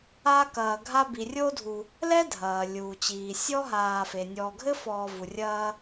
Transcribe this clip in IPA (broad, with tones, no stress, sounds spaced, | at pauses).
a˦ k ɐː˨ ɡʱ a˦ b i˨ rʲ o˥ dʱ u˨ | l ɛ˥ dʱ ɐː˩ lʲ uː˩ t͡ɕ iː˩ sʲ ɔ˥ ɦ aː˨ f e˩ nʲ ɔː˨ ɡʱ ɘ˥ f ɔː˨ v u˩ rʲ ɐː˦